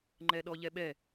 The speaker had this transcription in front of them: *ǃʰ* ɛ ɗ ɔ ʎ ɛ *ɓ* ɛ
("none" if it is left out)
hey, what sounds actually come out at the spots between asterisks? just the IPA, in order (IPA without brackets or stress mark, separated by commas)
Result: ŋ͡ǃ, ɓ